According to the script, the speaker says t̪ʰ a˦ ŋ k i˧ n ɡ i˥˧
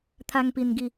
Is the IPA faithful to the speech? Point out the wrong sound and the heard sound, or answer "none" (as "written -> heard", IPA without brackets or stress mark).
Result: k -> p